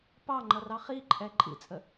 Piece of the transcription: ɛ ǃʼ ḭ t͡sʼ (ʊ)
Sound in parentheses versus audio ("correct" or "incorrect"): incorrect